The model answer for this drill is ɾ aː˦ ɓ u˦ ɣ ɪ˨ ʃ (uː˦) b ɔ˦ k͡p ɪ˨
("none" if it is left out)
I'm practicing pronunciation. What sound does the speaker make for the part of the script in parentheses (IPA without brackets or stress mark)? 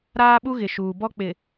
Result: uː˨